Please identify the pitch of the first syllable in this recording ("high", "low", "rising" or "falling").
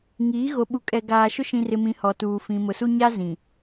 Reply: rising